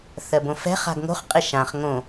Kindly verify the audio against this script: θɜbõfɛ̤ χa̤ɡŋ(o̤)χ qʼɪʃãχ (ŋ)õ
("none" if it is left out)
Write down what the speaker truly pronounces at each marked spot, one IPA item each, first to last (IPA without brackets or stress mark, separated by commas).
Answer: o̤, ŋ